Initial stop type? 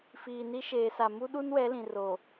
implosive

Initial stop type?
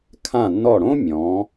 aspirated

